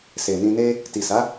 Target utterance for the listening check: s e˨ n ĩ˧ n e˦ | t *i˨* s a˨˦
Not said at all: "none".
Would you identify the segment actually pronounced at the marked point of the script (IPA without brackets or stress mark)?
i˨